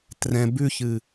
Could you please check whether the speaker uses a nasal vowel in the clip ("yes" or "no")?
yes